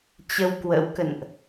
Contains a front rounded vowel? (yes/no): no